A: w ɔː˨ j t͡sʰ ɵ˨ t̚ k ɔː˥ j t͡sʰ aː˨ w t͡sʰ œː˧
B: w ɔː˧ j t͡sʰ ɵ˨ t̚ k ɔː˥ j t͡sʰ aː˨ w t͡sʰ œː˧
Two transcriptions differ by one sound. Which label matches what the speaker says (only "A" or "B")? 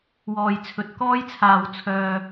A